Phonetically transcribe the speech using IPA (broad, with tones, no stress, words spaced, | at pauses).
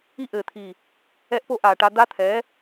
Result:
i˦ʔɘː˨t̪ʰiː˨ | ɛ˦ʔpo˦ ʔaː˨ʈa˦ d̪a˦t̪ʰɛː˨˦